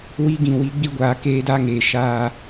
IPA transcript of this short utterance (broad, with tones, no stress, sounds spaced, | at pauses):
w i˦ ɡ ĩ˨ w iː˦ ɡ͡b i˦ ɡʷ aː˨˦ k eː˦ d a˦ ŋ eː˨ ʃ aː˦